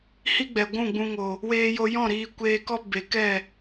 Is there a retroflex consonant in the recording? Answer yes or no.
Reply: no